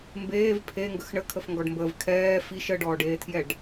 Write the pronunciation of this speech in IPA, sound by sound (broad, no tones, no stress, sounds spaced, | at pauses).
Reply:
m b eː v pʰ e ŋ ɡ ə x ɳ ə kʰ ə f ŋ ɡ ɔ ɖ m b əː v kʰ ɛː f i ʃ ə ɖ ɔː ɖ eː tʰ j ɛ ɖ